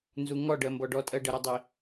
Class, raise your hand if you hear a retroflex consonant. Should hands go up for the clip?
yes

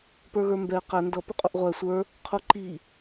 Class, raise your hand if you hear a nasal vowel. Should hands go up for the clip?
no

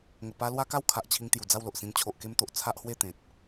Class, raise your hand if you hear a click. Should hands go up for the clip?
no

